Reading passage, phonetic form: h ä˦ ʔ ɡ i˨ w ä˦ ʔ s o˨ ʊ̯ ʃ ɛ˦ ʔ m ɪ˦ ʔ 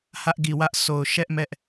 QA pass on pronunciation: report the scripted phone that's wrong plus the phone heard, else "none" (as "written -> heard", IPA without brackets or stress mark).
ɪ˦ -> ɛ˦